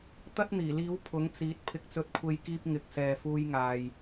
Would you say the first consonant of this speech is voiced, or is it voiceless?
voiceless